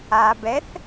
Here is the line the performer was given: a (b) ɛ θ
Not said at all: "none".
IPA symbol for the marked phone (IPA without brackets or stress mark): b